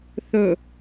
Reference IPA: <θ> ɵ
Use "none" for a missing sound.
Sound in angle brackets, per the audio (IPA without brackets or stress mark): θ